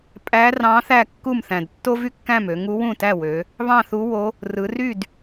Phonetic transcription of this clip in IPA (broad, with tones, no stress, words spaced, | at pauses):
pʼæ˧˥rɑ̃˧˥ θæ˥˩kːu˥˩mθæ̃˨˩d tːo˥vy˥kːæ̃˥˩mø˩˧ ŋu˧˥wũ˥˩tæ˥˩wø˩˧ | βɑ̃˥˩θu˧˥wo˧˥ | rɯ˩˧ ry˥˩d